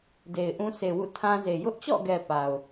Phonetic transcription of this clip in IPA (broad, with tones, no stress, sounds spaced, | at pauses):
d e˨ ɪ̯ ʔ ũ˦ sʰ e˨ w ṵ˦˨ tʰ ã˦ z e˨ j ʊ˦ ʔ t͡ɕ ɔ̰˦˨ ɡ ɛ˨ p a˨ ʊ̯